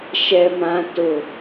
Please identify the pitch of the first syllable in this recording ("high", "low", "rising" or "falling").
low